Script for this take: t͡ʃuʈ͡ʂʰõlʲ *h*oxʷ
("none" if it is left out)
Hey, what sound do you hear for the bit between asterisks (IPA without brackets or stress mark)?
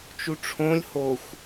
h